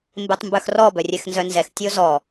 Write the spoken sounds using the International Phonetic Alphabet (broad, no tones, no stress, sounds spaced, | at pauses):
m b e tˤ m b œ x r ɔ b œ rʲ ɛ x n z œ n z ɛ x tʲ o z ɔ